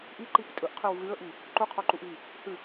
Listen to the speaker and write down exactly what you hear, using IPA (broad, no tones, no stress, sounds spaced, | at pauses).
ʔ i ǃ i p tʼ ɵ ʔ qʰ ʉ w ɣ ʉ ə̯ ʔ i | ǃ u qʰ o ǃ u ʔ ɣ i | h ʉ